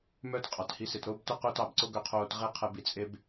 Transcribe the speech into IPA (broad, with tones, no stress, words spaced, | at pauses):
mœː˦t qʼɑ˨thi˧ se˨tɾoː˦btœ˦ qɵ˦tɑ˦˨bǀo˦ ɡœ˧qʰoː˧t ʁe˦ qʰɛ˧bi˧t͡sʼe˦b